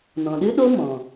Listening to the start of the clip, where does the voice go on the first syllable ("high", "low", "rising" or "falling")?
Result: low